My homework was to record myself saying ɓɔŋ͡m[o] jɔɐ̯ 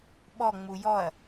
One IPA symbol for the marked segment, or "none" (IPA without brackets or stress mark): u